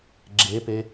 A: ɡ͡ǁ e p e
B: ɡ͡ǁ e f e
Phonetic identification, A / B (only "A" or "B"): A